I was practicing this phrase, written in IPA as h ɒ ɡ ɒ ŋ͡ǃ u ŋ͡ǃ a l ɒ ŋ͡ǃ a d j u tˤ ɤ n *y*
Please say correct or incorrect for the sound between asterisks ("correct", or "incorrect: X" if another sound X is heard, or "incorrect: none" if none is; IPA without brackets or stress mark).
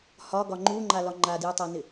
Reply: incorrect: ɪ